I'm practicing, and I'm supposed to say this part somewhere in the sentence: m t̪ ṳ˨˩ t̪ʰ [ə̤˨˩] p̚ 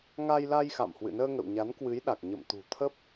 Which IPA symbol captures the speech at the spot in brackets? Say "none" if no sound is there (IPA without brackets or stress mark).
ə˦˥